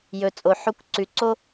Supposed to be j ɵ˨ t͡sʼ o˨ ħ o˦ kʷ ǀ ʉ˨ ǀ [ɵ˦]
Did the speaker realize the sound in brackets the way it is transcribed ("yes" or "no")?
no